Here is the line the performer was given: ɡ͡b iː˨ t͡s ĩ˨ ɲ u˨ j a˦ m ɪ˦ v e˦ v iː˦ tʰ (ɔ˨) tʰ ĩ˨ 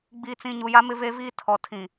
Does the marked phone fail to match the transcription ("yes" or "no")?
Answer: no